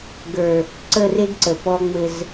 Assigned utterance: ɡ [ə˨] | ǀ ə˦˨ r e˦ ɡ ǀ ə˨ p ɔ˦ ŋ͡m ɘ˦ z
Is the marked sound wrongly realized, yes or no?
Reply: yes